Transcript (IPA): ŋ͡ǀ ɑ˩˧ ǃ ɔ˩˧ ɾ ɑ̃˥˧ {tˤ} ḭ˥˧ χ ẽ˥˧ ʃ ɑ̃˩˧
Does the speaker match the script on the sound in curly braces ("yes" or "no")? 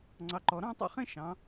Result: yes